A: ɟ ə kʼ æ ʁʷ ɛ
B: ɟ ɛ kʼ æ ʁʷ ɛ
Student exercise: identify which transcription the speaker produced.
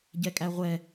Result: B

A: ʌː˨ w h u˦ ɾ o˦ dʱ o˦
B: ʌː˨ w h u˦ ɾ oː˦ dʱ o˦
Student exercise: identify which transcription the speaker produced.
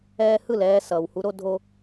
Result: A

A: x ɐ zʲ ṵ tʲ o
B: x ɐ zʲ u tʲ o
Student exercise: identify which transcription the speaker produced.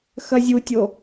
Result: B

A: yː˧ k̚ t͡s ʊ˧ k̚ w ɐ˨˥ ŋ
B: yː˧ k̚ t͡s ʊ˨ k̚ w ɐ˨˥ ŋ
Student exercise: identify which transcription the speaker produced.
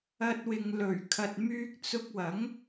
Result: A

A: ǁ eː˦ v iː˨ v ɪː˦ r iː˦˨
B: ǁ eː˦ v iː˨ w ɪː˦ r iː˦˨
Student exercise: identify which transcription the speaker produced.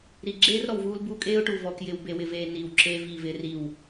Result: A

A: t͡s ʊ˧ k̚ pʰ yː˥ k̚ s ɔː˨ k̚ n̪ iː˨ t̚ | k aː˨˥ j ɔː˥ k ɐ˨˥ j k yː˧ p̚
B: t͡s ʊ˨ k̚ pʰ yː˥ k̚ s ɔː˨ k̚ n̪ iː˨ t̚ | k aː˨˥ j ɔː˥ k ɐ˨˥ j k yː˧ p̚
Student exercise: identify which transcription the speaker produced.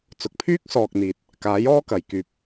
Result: B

